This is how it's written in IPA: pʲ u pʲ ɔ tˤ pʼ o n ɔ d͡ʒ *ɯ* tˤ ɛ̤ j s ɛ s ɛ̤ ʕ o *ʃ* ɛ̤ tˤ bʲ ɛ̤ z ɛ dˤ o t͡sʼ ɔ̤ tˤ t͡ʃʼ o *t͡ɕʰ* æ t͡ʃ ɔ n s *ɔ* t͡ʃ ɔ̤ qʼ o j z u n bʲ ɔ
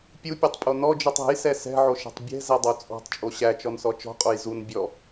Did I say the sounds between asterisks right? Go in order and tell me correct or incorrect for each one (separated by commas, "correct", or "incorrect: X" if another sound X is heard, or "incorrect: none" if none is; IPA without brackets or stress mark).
correct, correct, incorrect: ɕ, correct